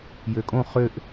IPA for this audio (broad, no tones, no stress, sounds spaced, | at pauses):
j ø kʼ õ χ ø ʔ